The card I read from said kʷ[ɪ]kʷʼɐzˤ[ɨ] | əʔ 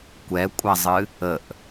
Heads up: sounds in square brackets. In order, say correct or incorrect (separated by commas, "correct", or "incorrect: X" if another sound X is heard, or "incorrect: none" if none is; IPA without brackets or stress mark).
incorrect: ɛ, correct